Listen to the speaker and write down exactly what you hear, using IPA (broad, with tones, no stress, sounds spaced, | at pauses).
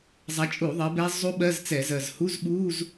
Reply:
zˤ a˨˦ t͡ʃʼ u˧˩˧ ðˤ ɜ˨˦ b ɛ˦˥ zˤ u˦˥ ɓ ɜ˧˥˧ z t͡s ɛ˧˩˧ z ɜ˨˩ z h u˧˥˧ z ɓ u˧˥˧ z